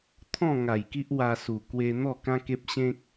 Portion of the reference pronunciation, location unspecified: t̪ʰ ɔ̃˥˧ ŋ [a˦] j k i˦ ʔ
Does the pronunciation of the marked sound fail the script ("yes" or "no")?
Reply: yes